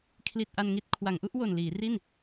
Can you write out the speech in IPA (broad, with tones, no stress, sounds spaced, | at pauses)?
kʰ l i˨˩ t̚ ʔ a˧ n ŋ i˥˩ t̚ kʰ w a˩˦ ŋ ʔ u˥˩ ʔ w o˨˩ n l iː˩˦ r i˥˩ n